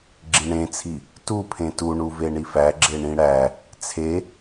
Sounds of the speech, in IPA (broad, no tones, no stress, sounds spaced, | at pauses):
ɡ͡ǁ ĩ ɳ ẽ t͡sʰ i | t u pʰ ẽ t u ɳ u v e ɳ i f æ ɡ͡ǁ e ɳ ĩ ɽ æ | t͡sʰ e